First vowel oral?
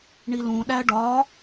yes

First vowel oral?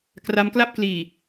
yes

